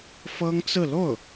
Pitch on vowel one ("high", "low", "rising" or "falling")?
high